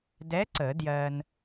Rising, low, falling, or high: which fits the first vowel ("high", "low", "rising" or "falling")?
rising